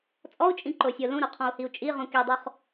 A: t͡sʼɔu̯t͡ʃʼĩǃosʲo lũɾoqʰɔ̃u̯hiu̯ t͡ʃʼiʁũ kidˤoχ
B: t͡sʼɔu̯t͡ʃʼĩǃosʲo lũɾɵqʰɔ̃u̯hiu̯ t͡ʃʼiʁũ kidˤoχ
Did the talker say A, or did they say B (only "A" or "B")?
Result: A